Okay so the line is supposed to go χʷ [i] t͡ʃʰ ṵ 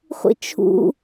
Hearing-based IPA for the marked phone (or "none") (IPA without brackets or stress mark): ḭ